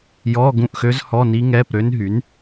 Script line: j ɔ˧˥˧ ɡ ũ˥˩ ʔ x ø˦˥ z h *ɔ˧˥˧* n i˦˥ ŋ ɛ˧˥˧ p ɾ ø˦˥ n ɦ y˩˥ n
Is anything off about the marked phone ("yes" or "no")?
no